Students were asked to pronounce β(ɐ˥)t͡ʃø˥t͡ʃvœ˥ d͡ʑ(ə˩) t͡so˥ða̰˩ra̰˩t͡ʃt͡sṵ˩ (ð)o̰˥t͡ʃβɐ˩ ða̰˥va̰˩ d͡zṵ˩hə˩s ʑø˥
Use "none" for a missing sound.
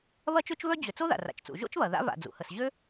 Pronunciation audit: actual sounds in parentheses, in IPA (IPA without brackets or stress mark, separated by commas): ɐ˥, ʏ˩, ʒ